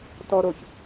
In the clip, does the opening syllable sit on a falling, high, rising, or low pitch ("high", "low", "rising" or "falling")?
low